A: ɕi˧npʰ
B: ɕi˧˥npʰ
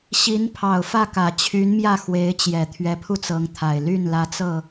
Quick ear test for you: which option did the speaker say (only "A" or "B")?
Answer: B